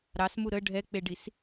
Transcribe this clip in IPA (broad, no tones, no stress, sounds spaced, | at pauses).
ɾ ɑ s m u ɾ ə ɖʱ ɛ k͡p e ɖ i s